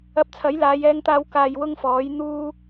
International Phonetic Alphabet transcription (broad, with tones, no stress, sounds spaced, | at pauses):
ɐ˧ p̚ t͡sʰ ɐ˨˥ j l aː˨˧ j ɛː˧ ŋ t̪ aː˧ w k aː˨ j w ʊ˥ ŋ f ɔː˨˥ j n̪ uː˧